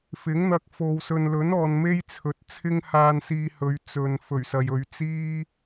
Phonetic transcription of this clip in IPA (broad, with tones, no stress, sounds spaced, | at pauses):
f ɪ˨˥ ŋ n̪ ɐ˧ k̚ f o˨ w s ɵ˨ n l ɵ˨˥ n ɔː˨ n m e˥ j t͡sʰ ɵ˨ t̚ t͡sʰ ɪ˥ ŋ h aː˧ n s iː˧ h ɵ˨˧ ɥ t͡s ɵ˨ n f ɵ˨˩ ɥ s ɐ˨ j ɵ˨˧ ɥ t͡s iː˥